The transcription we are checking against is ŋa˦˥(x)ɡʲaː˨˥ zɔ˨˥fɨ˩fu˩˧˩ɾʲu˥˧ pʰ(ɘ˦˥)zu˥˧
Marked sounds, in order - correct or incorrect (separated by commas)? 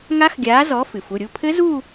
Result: correct, correct